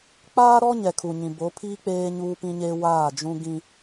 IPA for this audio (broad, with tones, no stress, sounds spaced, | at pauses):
k͡p aː˦ ɾ ɔ˦ ɲ ɛ˨ kʰ u˨ ɲ ĩ˨ b o˨˦ pʰ iː˦ k͡p eː˦ ɲ uː˦ p ĩ˦ ɲ eː˦ w aː˦˨ d͡ʒ ũ˦ ɡ ĩ˦